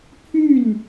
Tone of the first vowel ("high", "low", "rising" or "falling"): falling